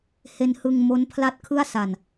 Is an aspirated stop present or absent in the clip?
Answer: present